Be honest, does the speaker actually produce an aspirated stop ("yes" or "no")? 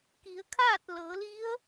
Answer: yes